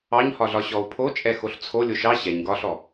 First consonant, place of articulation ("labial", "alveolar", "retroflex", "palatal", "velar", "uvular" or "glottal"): palatal